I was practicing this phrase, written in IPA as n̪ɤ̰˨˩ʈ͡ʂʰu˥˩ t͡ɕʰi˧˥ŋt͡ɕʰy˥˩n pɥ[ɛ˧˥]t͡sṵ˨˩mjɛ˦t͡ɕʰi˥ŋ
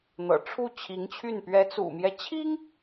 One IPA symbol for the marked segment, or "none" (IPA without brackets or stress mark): ɛ˧˥